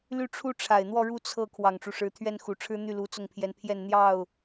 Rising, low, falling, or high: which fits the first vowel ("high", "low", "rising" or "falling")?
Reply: falling